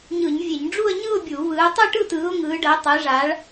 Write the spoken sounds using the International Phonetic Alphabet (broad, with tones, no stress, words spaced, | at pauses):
ɲɯ˧˩˧ɲvʲe˧˩˧ɲ ɖ͡ʐu˥˧ə̯ɲɯ˥˧ʊ̯bʲu˧˩˧ βɯː˨˦ tˤɯ˥˧ʈɯ˥˧tɯː˨˦ʊ̯ ŋɯː˨˦ɖə˨˦ʊ̯tˤe˨˦ʐa˨˦ɭ